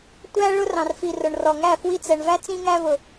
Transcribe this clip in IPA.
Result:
tʷæ˦ ɭʊ˦rɑ̃˨rfi˨rʊ˨ɳ rɔ˨ŋæ˦˨ fwi˧t͡sɛ˨ɳvæ˦ t͡sĩ˧ŋæ˧vʊ˨

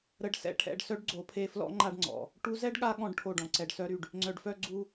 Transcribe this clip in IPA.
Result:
ɾə˧ɖ sɛ̰˧ ʈʰɛ̰˧ɖ sœ˦ɖɡ͡ǀo˨˦pʰe˧flɔ̰˦ ŋ͡ǃa˦ɖŋ͡ǀɔ̰˨ | ʈu˧zɛ˦ɖɠa˧ ɠɔ̃˦ɖʈʰo˦˨ɖɔ̃˨ǀɛ˧ɖ sœ˧ɾy˨ɖ | ŋ͡ǀœ˨ɖfœ˦ɡ͡ǀu˦

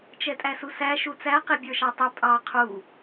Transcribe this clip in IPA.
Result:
t͡ʃɛtʼæsusæ ʃut͡sæ qibʲə˞ʃɑtˤɛ pʼɑ qʰu

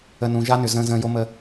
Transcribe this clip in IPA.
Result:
ə˨nũ˨ʒa˦nʏ˨ zə̃ː˨zə̃ː˨ jo˦mə˦

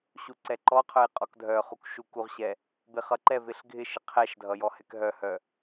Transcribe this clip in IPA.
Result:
ɕuǀɛǃɔqʰœj qʼɔkdʱœχuk ʃukuʁɕɛ | bɪχʌǃɛvɪɬ ɡʱɪʃɪ qʰɛʃdʱʌ jɔhɛkɦœhœ

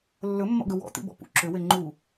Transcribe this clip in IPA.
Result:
lːɵmːɔ̰ɡɵ wɔ̰t̪ḭbɔ̰ pṵ ǁʏwe ŋ͡ǃu

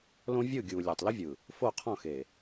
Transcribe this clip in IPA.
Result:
lõ˦vʲɯ˦˨ɡʲu˨ lʲa˨tˤlɘ˦vʲɯ˨ | fo˦˨qʰɔ̃˦˨xe˨

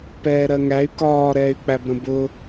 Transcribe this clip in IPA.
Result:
pɛːɾɜŋæy̯ kɒː ɾɛːy̯k͡pæbɾə̃bʊ

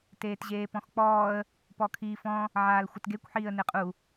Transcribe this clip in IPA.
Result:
teːtʑeːpɔ̃xk͡pɔːə̯ | pɔkʰiːfɔ̃ | ʕaːlxʷɪtɡekʷ ħiːə̯neqʼu

